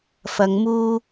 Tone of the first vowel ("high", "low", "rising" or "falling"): low